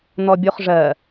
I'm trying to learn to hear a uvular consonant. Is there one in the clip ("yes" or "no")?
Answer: yes